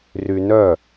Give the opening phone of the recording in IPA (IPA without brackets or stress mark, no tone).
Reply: r